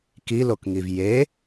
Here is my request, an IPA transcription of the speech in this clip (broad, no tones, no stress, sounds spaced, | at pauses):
k i l o k ŋ i v j e